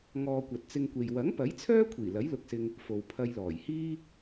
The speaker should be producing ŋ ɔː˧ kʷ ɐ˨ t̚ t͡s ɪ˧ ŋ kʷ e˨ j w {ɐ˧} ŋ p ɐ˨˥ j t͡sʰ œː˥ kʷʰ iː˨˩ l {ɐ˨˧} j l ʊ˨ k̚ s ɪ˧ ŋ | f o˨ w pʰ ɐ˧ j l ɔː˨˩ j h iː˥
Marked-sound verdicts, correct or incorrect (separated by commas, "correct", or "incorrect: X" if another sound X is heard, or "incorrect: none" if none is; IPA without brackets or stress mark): incorrect: ɐ˨˥, incorrect: ɐ˨˥